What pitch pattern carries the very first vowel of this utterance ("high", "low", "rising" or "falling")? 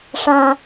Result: low